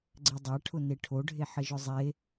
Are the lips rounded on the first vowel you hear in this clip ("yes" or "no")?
no